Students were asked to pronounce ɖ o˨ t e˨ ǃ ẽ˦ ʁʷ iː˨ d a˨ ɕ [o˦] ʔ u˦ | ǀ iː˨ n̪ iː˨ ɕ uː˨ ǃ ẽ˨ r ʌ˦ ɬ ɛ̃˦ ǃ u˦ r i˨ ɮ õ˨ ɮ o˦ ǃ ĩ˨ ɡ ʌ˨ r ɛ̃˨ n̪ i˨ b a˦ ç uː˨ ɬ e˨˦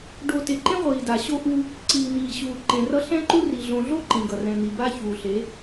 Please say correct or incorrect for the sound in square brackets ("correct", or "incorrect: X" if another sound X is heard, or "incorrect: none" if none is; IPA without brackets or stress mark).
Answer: correct